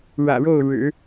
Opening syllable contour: low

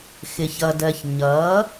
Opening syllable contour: low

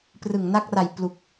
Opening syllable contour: low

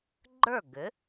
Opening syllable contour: falling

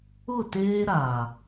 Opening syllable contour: falling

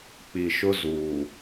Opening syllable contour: low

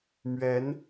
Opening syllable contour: rising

